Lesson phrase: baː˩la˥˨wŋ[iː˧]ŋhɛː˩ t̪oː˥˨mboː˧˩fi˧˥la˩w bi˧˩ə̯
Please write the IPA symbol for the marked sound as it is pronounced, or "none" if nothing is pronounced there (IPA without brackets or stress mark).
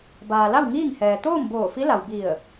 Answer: iː˥˨